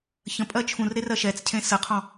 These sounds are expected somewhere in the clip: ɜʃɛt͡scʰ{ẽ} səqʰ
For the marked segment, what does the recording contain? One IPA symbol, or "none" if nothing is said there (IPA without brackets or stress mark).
ẽ